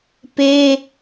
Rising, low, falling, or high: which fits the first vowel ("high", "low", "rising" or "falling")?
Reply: high